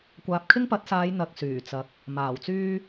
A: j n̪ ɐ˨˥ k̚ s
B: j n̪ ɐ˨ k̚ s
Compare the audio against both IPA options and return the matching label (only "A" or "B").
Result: B